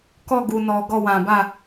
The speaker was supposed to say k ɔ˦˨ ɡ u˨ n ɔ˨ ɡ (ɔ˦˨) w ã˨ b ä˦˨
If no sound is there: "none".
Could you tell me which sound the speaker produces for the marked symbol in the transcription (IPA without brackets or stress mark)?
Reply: ɔ˦˨